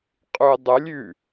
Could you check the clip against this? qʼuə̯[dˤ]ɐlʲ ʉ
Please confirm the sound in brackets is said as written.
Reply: yes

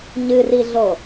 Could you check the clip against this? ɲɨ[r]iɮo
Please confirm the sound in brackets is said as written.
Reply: yes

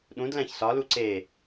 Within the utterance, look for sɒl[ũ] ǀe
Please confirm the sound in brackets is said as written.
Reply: no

